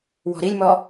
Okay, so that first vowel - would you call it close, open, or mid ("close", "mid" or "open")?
mid